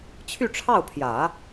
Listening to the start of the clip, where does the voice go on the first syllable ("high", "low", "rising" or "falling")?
falling